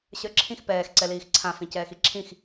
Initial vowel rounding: unrounded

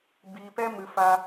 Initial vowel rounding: unrounded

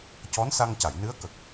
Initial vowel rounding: rounded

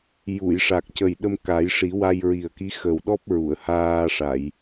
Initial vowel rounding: rounded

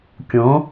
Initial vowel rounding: rounded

